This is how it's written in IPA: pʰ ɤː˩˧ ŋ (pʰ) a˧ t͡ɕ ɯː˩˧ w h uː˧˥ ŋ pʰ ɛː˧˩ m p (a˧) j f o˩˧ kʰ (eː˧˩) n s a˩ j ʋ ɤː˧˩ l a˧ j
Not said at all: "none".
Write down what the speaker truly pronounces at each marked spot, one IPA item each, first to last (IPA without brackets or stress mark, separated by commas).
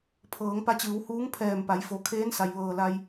p, a˩˧, eː˧˥